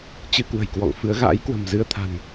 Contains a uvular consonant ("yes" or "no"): no